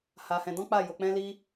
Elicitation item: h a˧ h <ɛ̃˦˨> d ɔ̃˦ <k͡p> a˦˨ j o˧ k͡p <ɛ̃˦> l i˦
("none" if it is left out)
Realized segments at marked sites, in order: ɛ̃˧, k͡p, ɛ̃˦

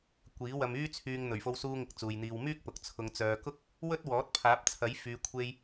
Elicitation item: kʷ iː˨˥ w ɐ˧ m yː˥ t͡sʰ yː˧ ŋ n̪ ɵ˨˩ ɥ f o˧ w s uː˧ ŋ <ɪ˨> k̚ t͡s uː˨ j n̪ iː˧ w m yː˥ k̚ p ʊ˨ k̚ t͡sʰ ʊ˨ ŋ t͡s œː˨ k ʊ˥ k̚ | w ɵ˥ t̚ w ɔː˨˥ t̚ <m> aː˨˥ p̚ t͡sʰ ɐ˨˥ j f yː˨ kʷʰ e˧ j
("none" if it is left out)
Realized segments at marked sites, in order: ɪ˨, pʰ

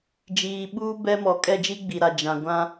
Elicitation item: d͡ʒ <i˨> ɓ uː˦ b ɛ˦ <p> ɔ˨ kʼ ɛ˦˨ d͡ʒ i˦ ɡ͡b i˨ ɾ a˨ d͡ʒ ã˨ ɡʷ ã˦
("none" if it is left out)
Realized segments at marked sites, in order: iː˨, m

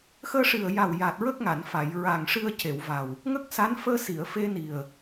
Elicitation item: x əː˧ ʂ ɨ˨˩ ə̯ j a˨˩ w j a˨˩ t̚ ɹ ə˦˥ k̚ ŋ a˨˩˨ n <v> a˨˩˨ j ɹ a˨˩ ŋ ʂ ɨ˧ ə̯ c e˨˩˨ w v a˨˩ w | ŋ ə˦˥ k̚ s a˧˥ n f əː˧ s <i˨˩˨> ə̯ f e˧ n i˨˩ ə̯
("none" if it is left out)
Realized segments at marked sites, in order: f, i˨˩˨

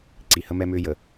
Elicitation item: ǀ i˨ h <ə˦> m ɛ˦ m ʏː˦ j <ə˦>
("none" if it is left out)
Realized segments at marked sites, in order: ə˦, ə˨

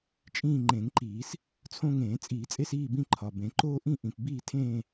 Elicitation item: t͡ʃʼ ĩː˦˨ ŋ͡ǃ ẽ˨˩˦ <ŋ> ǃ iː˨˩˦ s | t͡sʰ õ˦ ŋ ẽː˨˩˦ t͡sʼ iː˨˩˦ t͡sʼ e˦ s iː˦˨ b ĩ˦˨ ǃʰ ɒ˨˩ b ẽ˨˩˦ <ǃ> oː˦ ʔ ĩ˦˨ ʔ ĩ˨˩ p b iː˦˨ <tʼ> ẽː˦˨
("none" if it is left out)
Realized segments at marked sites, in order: ŋ, ǃ, tʰ

